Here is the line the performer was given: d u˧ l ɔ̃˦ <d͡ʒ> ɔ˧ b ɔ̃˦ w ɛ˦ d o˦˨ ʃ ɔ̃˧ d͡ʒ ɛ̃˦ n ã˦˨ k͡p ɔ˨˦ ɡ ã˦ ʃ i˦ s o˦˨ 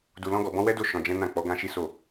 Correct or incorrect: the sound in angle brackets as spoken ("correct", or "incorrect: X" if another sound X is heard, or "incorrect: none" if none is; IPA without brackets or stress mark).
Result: incorrect: ɡ